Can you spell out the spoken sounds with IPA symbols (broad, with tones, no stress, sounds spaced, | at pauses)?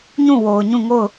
ɲ ũ˦˨ w o˨ ʊ̯ ɲ ũ˦˨ ŋ o˦˨ ʊ̯